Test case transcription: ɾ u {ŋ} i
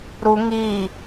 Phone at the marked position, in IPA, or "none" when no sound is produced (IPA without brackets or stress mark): ŋ